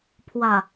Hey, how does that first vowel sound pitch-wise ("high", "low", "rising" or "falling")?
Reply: low